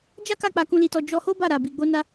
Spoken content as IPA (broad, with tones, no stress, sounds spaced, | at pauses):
d͡ʒ a˦ k a˦˨ k͡p a˧ k ũ˧ l i˧ t ɔ˧ d͡ʒ ɔ˧ h o˦ b a˦˨ ɾ a˧ b i˧ ɡ͡b o˦ n a˦